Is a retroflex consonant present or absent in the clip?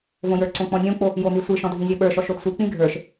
absent